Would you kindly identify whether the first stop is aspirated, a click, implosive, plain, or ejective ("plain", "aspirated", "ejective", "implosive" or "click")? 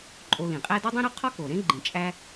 click